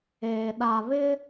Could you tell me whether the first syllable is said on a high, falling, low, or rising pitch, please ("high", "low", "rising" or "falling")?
low